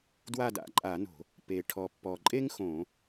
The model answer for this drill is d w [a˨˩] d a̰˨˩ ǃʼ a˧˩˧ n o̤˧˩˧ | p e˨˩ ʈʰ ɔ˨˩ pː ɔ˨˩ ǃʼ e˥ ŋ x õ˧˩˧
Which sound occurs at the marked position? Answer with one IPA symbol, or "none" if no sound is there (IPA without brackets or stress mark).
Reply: a˦˨